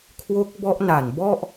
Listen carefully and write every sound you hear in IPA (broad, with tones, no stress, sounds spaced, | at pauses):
kʰ w o˦˥ k̚ b ɔ˦˥ ʔ n a˨˩ n b ɔ˥˩ ʔ